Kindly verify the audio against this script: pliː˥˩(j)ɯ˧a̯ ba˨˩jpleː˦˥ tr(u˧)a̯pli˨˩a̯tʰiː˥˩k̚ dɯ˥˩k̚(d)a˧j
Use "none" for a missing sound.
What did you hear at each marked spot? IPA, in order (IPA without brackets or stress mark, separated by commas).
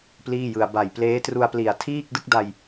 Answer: j, u˧, d